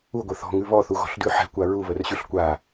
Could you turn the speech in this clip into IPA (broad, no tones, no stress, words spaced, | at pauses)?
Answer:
uɡʷə θɔ̤ŋʉ βɔθuɣɔ̤ɬdʉ ħɛ̤kʷa ɹuβərɕʉɬ kʷa